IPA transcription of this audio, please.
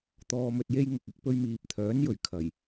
t̪ ɔː˧ m ɵ˧ t̚ j e˥ j ŋ ʊ˨ k̚ ɪ˨˥ k̚ p ɵ˧ ɥ m iː˨ p̚ t̪ʰ œː˨˥ n j ɵ˨˩ ɥ kʰ ɐ˨˩ j

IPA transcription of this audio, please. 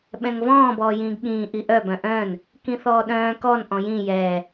ɓ ɛ̃ ŋ v ɔ̃ː b ɔː j ĩː ɡ ɠ ĩː ʔ i ʔ œ b œ̃ ʔ œ̃ː n | k ĩ θ ɔː ɗ œ̃ː k ɔ n ʔ ɔ̃ j ĩ j ɛː

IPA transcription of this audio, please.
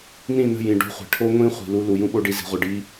n ĩ˦˨ n ə̤˦˨ j ĩ˨ ɖ o̤˦ χʷ e̤˨ ʈʰ o˦ ŋʷ ĩ˦ χʷ i̤˨ l u˦ l u˨ j ũ˦ ɓ o˦ ɖ i˦ z i̤˨˦ ʁʷ œ˨ ɖ i˦

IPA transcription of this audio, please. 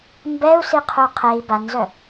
m b ɛ u̯ s i qʰ u qʰ e i̯ b a n z œ

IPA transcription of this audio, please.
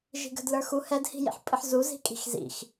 ʒ i̤ ɡ ə̤ d l ə˞ x u h ɛ d h i̤ j ḭ ħ pʼ ɨ ħ z u z i̤ kʼ i̤ x z ḭ x

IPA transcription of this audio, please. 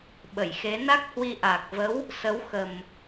ɓ ə˧˩ j x e˨˦ n a˦˥ k̚ h w i˧ ʔ a˨˩ k̚ v ə˨˦ w | s ə˨˦ w x ə˨˩ m

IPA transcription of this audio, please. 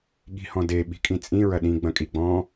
ɠ i̤ h ɔ̃ d e ɓ i̤ kʼ ĩ t͡sʼ ĩ ɹ ɐ ɗ ĩ ɡ͡b ɐ̃ kʼ i ɡ͡b ɔ̃

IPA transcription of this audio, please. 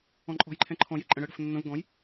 ɔ̃ ǃʼ ɔ̤ j ǃʰ ɛ̃ ǃʰ ɔ̃ j e ǃʼ ə̃ ɽ ə ɽ ə̤ f nː ə̃ v ɡ ɔ̃ j

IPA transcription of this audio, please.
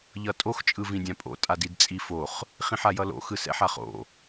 ʎ ʌ tʼ o x t͡ʃʼ ɯ v ĩ dʲ ã pʼ o̰ tʼ a d i d t͡sʼ i f o χ | χ ĩ ħ a j ʌ l o̰ x ɯ s ɛ̰ ħ a χ o̰

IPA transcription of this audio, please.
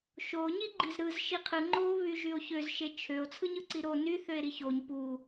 ʃ o ɲ i ɡ͡ǃ i z ɾ ɯ z ʃ i qʰ ɯ ŋ͡ǃ o β y ʒ y o̯ ç ø z ʃ e t͡ʃʰ ø o̯ t͡sʰ ɯ ɲ ɯ ǀ i ɾ o n y θ ø e̯ ɾ i ç o ɲ p u

